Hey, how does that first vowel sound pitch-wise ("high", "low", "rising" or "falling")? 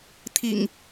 low